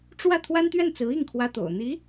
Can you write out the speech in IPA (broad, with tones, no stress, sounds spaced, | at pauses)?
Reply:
ʈ͡ʂ w ä˥˩ t̪ʰ w a˥ n t̪ ɥ ɛ˥˩ n t͡s ɹ̩˧˥ i˥˩ ŋ kʰ w ä˥ t̪ o̰˨˩ ʊ̯ n̪ i˧˥